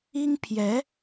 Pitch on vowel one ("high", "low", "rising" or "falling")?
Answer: high